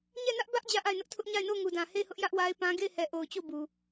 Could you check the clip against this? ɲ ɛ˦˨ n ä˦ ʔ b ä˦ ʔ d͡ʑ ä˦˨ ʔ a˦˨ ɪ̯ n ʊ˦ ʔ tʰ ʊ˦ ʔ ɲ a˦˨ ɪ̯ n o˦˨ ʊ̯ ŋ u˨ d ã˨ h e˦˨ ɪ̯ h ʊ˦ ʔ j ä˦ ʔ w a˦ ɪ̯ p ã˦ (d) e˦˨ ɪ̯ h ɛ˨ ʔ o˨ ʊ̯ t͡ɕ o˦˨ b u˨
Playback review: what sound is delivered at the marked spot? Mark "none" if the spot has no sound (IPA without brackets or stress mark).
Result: ɡ